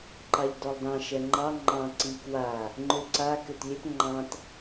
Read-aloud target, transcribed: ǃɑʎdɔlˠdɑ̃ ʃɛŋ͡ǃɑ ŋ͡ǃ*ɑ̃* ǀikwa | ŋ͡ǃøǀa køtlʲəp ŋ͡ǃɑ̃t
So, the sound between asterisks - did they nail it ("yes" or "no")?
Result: yes